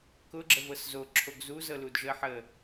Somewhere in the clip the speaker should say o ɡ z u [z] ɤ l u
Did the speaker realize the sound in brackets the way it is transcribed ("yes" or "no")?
yes